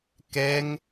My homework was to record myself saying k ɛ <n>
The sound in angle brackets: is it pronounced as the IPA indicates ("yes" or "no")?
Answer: no